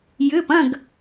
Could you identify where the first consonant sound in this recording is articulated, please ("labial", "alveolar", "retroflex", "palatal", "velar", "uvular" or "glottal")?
palatal